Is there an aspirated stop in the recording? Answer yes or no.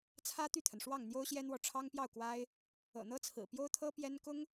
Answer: yes